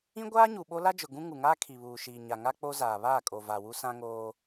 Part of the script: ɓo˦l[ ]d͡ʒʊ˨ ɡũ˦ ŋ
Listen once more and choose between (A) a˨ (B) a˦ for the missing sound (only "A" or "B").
B